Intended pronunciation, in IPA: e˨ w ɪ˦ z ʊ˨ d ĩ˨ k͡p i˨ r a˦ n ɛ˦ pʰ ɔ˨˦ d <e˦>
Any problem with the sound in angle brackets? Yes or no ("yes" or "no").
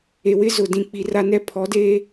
no